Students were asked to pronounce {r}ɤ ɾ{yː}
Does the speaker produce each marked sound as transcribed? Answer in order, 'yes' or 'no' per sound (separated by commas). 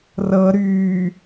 yes, yes